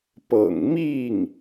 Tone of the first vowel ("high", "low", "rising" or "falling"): low